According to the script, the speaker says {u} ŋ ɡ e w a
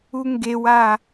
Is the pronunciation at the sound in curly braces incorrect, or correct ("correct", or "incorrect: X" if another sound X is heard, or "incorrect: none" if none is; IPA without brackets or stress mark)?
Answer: correct